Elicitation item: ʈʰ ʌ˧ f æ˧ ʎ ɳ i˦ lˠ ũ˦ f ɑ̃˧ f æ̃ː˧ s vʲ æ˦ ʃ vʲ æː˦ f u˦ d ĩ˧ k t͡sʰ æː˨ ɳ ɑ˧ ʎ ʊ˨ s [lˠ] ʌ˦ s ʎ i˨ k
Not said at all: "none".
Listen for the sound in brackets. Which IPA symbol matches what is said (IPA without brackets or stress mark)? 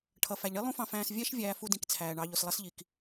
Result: lˠ